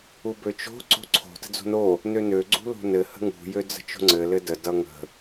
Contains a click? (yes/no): yes